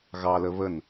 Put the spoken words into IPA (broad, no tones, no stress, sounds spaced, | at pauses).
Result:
ɣ ɑ l ə β ə n